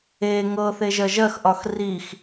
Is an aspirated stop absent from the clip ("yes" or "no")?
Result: yes